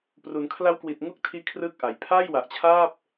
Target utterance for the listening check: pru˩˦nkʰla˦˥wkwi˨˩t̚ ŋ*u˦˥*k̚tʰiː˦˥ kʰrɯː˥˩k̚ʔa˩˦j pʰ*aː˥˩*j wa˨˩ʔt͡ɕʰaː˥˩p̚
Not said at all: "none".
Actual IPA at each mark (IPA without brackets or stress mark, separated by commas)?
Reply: u˥˩, aː˥˩